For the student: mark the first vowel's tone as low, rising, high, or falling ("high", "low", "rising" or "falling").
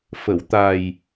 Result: low